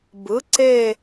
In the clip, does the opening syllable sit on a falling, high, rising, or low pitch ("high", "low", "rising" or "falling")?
rising